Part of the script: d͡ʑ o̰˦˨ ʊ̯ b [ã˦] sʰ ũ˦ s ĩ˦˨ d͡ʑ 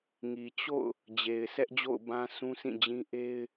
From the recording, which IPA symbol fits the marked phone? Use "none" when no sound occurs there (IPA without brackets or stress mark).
ã˦